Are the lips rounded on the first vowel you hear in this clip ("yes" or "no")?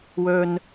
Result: yes